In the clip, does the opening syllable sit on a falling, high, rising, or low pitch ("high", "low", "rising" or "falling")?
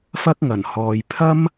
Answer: high